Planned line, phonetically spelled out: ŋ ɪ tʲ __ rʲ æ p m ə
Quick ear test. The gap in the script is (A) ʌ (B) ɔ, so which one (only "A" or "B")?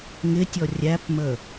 B